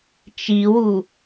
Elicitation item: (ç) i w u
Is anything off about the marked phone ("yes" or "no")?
yes